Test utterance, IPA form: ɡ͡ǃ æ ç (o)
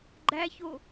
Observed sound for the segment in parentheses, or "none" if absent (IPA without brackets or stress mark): o